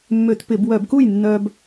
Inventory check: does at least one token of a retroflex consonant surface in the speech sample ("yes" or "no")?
no